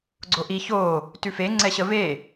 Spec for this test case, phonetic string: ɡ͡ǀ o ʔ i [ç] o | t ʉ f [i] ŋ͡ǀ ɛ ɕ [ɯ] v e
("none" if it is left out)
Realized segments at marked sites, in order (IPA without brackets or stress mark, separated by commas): ç, e, ə